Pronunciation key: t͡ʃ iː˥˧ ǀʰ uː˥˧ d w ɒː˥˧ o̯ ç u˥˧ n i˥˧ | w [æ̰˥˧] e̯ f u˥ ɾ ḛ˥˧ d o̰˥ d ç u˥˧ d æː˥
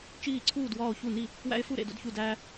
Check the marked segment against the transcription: incorrect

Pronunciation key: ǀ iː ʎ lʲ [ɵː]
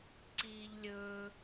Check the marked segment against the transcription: correct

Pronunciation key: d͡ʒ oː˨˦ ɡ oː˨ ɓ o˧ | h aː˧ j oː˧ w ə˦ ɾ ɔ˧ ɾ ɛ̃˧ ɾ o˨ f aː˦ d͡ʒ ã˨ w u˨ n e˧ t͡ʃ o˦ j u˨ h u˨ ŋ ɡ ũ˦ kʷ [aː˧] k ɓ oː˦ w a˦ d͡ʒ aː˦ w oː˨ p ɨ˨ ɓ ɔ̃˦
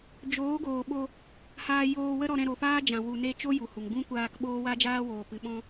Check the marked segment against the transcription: correct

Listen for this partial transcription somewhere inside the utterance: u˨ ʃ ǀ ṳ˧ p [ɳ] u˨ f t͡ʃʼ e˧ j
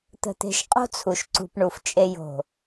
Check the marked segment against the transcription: correct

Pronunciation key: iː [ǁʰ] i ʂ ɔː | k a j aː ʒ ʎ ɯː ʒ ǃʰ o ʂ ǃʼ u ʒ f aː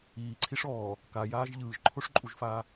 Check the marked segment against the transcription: incorrect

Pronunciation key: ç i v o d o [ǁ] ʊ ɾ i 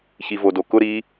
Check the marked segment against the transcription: incorrect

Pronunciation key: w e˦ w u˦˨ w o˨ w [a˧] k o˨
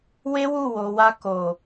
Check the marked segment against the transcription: correct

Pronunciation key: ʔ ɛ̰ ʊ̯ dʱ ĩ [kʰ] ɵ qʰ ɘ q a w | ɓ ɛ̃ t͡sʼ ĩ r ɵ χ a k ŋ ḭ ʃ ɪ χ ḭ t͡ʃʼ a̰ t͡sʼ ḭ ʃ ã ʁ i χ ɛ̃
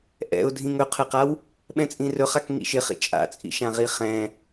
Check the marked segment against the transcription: incorrect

